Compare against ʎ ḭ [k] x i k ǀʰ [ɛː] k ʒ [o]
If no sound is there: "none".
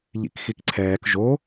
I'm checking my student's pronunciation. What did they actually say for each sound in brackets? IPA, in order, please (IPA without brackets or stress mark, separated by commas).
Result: k, ɛː, o